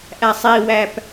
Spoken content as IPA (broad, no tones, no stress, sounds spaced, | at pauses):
ʔ æ sˤ i w æ p